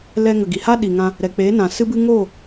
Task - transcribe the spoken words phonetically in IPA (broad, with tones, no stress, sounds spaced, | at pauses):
l ɛ˧ ŋ ə˨ ɡ i˨ h a˦ ɗ i˨ ŋ ã˧ | ɾ ɛ˨ k͡p eː˨˦ n ã˨ s ɨ˧ b ɨ˧ ŋ oː˦˨